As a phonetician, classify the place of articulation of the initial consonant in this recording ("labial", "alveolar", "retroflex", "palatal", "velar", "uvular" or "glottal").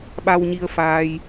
labial